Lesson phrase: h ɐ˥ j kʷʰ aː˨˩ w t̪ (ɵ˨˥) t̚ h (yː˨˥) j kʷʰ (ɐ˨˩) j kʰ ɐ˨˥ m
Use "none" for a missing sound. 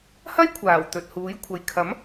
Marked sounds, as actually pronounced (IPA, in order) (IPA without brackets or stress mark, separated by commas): ɵ˨, uː˨˥, ɐ˨